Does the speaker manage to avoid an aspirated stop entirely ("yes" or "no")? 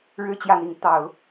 yes